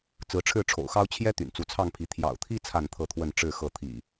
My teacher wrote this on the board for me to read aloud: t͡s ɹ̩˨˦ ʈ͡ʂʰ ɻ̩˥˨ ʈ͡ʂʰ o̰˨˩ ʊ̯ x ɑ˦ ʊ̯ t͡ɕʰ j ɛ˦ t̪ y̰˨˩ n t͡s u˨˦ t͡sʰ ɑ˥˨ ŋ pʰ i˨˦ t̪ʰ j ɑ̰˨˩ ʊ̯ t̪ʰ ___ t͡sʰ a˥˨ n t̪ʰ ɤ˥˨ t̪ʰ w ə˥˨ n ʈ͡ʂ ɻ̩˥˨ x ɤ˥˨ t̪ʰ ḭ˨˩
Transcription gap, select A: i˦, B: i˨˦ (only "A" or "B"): A